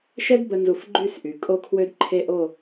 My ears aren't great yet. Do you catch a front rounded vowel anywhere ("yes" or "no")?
yes